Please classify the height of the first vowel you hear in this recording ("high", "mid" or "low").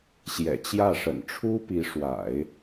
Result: mid